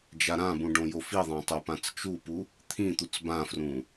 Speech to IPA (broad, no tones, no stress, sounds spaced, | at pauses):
d͡ʒ a ɾ ã b ũ ɖ õ j o f i ðˤ ã tˤ o p ã t͡s t͡ʃ u p u | t̪ʰ ĩ t̪ u t͡s b ã f r ũ